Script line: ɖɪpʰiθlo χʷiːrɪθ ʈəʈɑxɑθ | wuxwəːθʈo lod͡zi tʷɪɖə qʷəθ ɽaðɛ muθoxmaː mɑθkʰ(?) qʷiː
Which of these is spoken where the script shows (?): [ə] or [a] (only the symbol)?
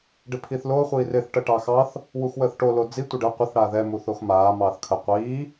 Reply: ə